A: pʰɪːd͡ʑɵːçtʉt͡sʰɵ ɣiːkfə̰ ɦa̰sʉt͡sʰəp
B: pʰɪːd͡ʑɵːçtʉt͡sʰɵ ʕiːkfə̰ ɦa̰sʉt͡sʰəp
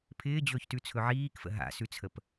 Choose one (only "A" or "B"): B